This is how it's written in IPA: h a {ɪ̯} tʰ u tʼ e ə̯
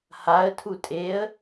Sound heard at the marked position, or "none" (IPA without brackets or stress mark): ə̯